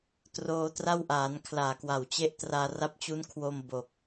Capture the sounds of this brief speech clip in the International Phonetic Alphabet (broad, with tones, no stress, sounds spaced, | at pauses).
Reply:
t r oː˧ t r a˥˩ w ʔ aː˩˦ n kʰ l aː˨˩ k w a˨˩ w t͡ɕ e˥˩ ʔ t r aː˧ r a˦˥ p̚ t͡ɕ u˦˥ n kʰ w o˧ m b o˨˩ k̚